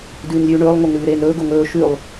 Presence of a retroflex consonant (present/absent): present